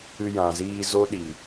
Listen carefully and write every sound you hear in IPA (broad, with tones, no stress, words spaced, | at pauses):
ɨ˧jã˨ziː˧ zo˦ɗi˨